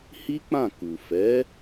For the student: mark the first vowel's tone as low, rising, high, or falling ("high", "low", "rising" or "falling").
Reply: high